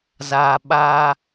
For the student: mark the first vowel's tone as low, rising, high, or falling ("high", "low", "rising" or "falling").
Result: low